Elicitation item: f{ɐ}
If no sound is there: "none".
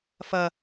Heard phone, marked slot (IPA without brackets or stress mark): ɐ